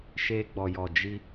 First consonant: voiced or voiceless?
voiceless